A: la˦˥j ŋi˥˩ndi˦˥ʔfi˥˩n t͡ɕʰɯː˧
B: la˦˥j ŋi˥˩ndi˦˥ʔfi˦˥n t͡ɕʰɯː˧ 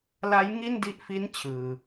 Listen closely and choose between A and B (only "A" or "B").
B